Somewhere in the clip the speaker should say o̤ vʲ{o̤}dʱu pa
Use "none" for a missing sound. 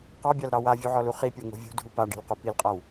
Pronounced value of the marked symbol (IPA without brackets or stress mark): ṳ